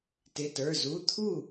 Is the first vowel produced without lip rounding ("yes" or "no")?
yes